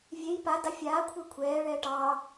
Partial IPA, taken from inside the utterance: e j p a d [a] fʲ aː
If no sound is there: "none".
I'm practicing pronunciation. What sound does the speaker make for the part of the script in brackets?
a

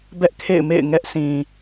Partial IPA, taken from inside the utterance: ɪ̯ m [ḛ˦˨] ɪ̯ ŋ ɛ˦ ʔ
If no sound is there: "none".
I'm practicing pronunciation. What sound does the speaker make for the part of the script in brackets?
ḛ˦˨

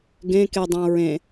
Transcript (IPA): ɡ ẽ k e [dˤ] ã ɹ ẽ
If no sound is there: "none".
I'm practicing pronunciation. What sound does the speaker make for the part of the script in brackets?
dˤ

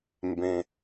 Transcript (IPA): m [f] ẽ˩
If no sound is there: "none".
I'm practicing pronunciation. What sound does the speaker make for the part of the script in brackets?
b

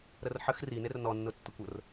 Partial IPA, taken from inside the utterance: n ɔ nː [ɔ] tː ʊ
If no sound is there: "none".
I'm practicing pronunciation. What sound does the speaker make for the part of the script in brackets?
ʊ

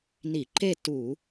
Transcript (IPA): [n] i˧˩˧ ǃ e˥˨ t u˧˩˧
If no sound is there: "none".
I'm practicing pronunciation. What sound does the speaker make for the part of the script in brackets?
n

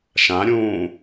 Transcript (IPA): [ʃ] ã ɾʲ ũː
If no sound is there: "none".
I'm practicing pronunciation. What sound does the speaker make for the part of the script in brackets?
ʃ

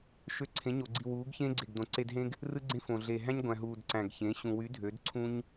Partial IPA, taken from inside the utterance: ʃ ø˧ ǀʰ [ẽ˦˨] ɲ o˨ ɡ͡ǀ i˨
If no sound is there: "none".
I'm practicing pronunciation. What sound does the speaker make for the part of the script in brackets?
ẽ˨˦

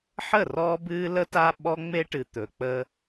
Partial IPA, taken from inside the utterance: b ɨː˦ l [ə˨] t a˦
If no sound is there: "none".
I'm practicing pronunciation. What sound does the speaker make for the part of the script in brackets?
ə˦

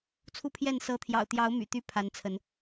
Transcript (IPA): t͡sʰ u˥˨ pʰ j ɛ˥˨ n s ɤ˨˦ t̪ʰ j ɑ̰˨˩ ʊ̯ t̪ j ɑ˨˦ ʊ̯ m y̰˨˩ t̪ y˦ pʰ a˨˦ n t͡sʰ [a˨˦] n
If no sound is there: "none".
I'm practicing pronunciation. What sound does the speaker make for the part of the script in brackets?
ə˨˦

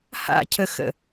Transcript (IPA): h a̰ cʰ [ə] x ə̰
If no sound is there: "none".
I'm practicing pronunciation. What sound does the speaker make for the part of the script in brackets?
ə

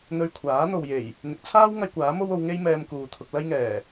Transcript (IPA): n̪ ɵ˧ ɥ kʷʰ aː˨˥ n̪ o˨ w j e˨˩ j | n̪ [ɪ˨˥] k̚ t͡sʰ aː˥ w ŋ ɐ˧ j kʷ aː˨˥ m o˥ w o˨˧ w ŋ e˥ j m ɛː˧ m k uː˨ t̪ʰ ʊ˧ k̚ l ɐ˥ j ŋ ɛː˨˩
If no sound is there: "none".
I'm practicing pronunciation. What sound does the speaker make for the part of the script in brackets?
ɪ˨˥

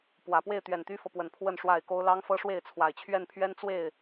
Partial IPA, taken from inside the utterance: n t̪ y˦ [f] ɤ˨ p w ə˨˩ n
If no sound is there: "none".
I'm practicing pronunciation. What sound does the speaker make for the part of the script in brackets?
f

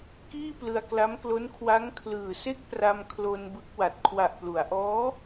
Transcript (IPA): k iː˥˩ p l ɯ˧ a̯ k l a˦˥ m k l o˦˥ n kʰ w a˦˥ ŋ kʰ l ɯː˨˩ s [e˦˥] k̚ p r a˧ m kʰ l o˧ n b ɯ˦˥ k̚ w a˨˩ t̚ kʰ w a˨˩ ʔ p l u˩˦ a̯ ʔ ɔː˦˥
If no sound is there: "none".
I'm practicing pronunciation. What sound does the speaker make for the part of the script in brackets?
e˥˩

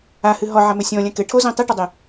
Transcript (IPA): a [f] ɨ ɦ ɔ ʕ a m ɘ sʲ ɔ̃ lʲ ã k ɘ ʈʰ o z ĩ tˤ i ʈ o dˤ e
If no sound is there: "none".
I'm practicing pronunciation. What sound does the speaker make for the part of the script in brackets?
h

